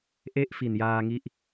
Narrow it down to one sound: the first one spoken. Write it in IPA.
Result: ʔ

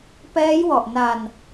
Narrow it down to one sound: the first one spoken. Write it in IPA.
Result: p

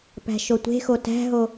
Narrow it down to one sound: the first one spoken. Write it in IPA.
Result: p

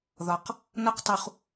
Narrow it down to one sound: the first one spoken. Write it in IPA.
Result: ð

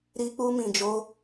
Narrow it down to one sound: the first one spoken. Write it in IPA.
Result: ɾ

